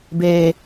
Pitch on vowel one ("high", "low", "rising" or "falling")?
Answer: low